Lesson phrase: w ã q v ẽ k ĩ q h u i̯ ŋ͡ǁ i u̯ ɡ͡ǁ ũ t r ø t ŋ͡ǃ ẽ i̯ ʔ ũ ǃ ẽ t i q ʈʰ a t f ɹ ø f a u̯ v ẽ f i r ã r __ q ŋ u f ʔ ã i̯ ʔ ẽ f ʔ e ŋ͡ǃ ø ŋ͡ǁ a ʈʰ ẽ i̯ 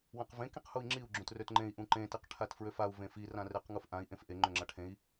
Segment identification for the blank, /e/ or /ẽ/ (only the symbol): e